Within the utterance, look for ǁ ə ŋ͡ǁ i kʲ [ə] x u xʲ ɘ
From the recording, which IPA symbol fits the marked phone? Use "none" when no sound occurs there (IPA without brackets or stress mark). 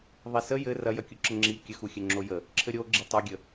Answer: ə